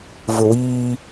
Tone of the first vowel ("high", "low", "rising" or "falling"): low